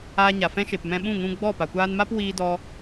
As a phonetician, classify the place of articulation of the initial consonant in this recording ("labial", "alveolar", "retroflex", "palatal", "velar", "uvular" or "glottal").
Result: palatal